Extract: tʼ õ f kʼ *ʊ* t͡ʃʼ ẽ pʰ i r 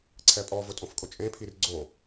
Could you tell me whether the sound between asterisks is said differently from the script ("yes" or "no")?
no